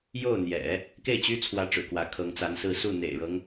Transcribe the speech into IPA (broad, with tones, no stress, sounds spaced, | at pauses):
j o˥˩ ʊ̯ n̪ j ɛ̰˨˩˦ | k e˥˩ ɪ̯ t͡ɕ y˥ t͡sʰ w ä˧˥ ʈ͡ʂ ɻ̩˨˩ k w ä˧˥ kʰ ɤ˧˥ ŋ t͡s a˧˥ n s ɹ̩˥˧ s u˥˩ n̪ ḛ˨˩ ɪ̯ ɻ ɤ˦ ŋ